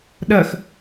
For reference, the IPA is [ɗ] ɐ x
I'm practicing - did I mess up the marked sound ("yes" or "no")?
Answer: no